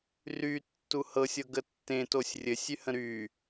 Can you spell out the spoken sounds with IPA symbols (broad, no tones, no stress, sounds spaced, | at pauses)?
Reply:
r y tː u h ɤ sʲ ɤ ɡ ə tː ẽ t o sʲ rʲ ɘ sʲ y h ə̃ ɾ y